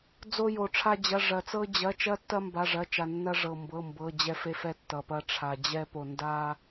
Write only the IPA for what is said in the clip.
d͡z o˥ j o˧ ʈ͡ʂʰ a˥ d͡ʑ ɐ˧˥˧ ʐ ɐ˧ t͡s ɤ˥ d͡ʑ ɐ˧˥˧ t͡ʃ ɐ˥ tː ɐ˥ m b a˧˥˧ ʐ ɐ˧˥˧ t͡ʃ a˧ nː ɐ˥ ʐ ɤ˧ m b ɤ˧˥˧ m b ɤ˧˥˧ d͡ʑ ɛ˥ f e˥ f ɛ˥ tː ʌ˧ p ɐ˥ ʈ͡ʂʰ a˧ d͡ʑ ɛ˥ p o˧ n d a˥

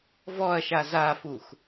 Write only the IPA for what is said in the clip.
v ɔ ɐ̯ ʃ a z a f u x

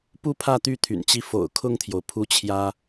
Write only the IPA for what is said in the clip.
p u˥ pʰ ä˥˧ t̪ y˥˩ t̪ʰ y̰˨˩ n t͡ɕ i˥˩ f o̰˨˩ ʊ̯ kʰ ʊ˥˩ ŋ t̪ʰ j o˩ ʊ̯ pʰ u˥˩ t͡ɕʰ j ä˥

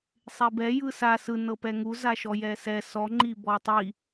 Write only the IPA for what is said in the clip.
sˤ e b ɛ j ɯ s a s ɯ n ɤ p ɛ ŋ u z a ʃ ɔ j ɛ s ɛ s ɔ ŋ͡ǃ i b ɔ tˤ i

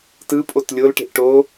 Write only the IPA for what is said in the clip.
t ɯ pʼ o t lʲ o l ʈ e̤ ʔ ʈ o

